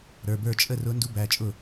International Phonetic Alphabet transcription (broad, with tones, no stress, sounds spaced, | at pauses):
ɾ ə˞˩˧˩ b ə˞˥˩ t͡ʃʼ ə˥˩ r ʊ˧˥ n d u˧˥ b æ˩˧˩ t͡ʃʼ ʊ˥˩